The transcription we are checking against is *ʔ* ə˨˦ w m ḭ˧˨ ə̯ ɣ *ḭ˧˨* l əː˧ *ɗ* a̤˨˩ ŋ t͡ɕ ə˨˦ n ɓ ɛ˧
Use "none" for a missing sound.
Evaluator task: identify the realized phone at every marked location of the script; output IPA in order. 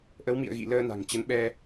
ʔ, ḭ˧˨, n

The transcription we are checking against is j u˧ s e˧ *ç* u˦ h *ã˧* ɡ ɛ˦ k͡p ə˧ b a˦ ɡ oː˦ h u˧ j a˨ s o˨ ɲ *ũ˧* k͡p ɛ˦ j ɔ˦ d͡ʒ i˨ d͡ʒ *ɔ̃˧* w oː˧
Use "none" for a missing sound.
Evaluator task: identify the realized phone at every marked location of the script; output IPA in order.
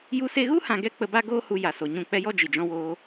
ɣ, ã˧, ũ˦˨, ɔ̃˧

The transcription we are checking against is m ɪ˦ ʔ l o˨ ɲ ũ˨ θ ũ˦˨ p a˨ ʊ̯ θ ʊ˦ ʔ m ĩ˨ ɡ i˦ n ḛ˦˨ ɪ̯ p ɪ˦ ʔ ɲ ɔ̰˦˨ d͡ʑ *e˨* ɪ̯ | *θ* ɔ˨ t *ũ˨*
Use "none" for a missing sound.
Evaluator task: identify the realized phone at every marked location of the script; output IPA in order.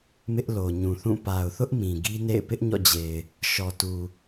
e˨, ʃ, u˨

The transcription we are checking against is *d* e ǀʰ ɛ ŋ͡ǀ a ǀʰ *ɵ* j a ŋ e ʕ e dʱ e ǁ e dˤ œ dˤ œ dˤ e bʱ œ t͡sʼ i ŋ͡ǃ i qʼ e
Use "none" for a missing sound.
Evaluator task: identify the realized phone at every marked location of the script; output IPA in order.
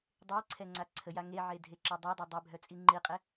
dˤ, ə

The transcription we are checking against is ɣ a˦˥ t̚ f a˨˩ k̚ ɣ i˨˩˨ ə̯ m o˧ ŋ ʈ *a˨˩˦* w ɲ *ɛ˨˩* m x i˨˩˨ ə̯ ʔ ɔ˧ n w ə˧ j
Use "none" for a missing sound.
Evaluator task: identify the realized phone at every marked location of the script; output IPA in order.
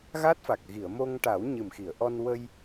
a˨˩˦, ɨ˨˩

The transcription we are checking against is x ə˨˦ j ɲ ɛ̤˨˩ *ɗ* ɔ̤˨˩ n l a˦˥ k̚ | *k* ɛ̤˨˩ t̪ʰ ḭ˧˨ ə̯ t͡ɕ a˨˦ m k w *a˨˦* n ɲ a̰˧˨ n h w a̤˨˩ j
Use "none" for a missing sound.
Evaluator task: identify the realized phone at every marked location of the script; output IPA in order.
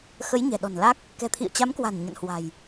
ɗ, k, a̤˨˩

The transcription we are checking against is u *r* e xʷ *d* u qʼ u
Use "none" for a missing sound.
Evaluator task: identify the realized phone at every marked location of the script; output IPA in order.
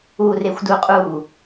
r, d

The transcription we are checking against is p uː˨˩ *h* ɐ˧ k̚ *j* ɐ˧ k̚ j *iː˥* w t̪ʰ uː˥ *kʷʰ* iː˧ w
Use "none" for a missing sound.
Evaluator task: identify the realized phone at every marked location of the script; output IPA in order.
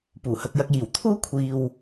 h, j, iː˨˩, kʷʰ

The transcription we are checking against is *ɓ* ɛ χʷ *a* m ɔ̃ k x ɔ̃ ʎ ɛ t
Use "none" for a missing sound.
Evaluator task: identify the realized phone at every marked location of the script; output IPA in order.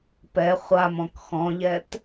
p, a

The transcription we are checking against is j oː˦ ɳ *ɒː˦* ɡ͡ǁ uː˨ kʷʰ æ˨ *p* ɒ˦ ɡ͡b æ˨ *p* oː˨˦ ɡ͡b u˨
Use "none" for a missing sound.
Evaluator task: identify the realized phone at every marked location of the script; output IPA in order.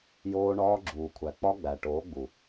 ɒː˦, k͡p, ʈ

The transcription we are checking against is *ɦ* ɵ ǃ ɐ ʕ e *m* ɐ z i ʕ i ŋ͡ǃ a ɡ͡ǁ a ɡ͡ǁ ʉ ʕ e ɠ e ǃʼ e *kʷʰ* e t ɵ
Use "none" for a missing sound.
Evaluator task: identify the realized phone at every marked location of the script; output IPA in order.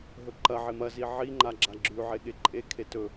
ɦ, m, kʰ

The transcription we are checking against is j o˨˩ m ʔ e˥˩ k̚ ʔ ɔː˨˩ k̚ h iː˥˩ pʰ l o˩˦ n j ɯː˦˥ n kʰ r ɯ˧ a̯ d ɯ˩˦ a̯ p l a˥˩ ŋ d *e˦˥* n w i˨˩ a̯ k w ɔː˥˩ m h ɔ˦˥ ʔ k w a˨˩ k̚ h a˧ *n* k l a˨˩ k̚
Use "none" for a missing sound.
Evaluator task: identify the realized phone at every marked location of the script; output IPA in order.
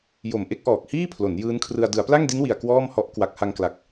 i˦˥, ŋ

